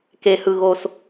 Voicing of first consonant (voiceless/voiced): voiceless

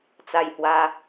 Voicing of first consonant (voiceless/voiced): voiceless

